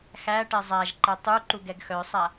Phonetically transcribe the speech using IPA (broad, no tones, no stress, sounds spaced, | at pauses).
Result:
x æ ʈ ɛ zˤ a ʒ ǃ ɛ tˤ u ǃ u ɡ ɛ ɡ x œ sˤ a